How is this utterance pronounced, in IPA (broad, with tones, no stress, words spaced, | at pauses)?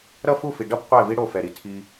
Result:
ɾʌ˦˨fu˦˨fi˨ɖʌ˦b qʷɛ˦˨vi˦ɽo˦˨ fɛ˨ɾi˨tʰi˦